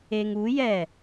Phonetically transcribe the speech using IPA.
eŋ u jɛ

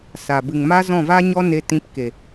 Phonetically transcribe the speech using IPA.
sa˨ bɨ˨ŋma˦zɔ̃˦˨ va˦ɲɔ˦ne˧tĩ˧p ke˨

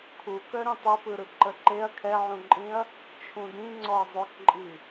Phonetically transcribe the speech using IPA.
kʰukœ ɾĩtˤipɯɾɯ ǃəǃeɐ̯ kʰɛʕũǃʼĩɐ̯ | t͡ʃʰũdĩ ŋ͡ǀɔɐ̯zˤɵkǃʼi

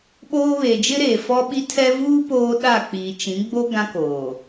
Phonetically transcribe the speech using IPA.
ɓoː˦ βe˨d͡ʒɪ˦ɾeː˨ fɔ˦ɓi˦tʰɛ˦ vuː˦ poː˦ɗa˦˨k͡piː˨ t͡ʃĩ˨˦ɡ͡bo˦ ɡã˦koː˨

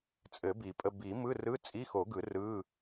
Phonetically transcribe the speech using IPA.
t͡sʼɘ˨˩˦bi˨˩˦pʼə˧ bi˨˩˦mɯ˧˥˧rɯ˧˥˧ t͡sʼi˧˥˧xo˨˩˦ɡɯ˨˩˦ rɯ˧˥˧

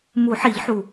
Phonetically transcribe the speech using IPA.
mu˨˩˦ħi˨˩˦ʎħu˨˩

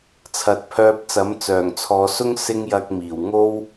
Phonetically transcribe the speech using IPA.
t͡sʰɐ˨t̚pʰœː˧p̚ t͡sɐ˨˥mt͡sœː˨˩ŋt͡sʰɔː˨sʊ˥ŋ sɪ˥ŋjɐ˧k̚ miː˨˩wŋo˥w

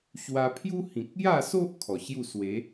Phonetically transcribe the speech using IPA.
ɕwa˧pʰju˦ hĩ˨k̚ja˥˧so˦ʔ kʰɔ˨˩ɕju˥˧ swe˨˦

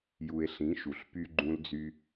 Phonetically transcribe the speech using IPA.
ju˨e̯ɬĩ˨˦ ʃu˨ɬ py˧ɡ͡ǃũ˧ld͡zy˧

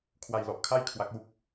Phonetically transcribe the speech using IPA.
kʰwa˧jlɔ˨˩ʔ kʰa˥˩j kʰwa˦˥k̚wu˥˩k̚

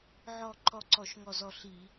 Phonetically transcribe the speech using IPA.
ʕɔ˧˩ ǃʰɔ˧˩ǀɔ˧˩˧ʃŋɔ˧˩zɔ˧˩ ɬi˧˩˧

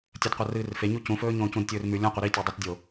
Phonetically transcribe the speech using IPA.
tʲɐdqʷa rɨːrfeɲu cũfɵː ɲõːcũdtʲɵːr mʉ lʲũqʷɐ ɾitʲo dˤɵtdʲo

